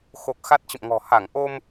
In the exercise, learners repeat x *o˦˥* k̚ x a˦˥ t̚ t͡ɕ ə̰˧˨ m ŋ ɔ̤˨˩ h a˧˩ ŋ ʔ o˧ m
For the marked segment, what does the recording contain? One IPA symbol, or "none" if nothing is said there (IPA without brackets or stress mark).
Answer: o˨˩